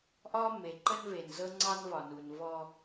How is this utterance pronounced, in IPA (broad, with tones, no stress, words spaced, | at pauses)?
ʔɒ˦ me˨ǃə˦nve˨n zɤ˦ŋ͡ǀɑ˦nvɒ˨nu˨n vɔ˦